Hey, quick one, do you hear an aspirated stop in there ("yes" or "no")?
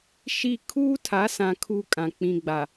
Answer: yes